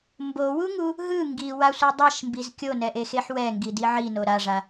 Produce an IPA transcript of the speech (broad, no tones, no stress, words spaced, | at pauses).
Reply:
mbowuŋu | ɦɯ ŋɡiwasʷi dˤaʃmbiz kʲonɛʔexeħ wɛŋɡidi ʕino ɾaʐa